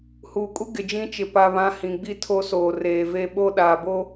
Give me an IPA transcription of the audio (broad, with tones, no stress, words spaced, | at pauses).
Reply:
huː˨kʼu˦ ɡɪ˨d͡ʒĩ˦t͡ʃɪ˨ pa˦βã˦ hĩ˨ɡ͡bi˦ tʰo˦soː˨ reː˨ve˦ɓo˦ ɗaː˨bo˦